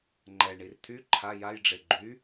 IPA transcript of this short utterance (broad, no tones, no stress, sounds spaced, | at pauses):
ŋ͡ǃ ɛ ɳ i r t̪ʰ y ǃʰ a j a j ɖ͡ʐ e ɡ͡ǃ y